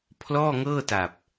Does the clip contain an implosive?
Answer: no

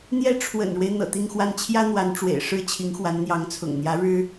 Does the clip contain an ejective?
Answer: no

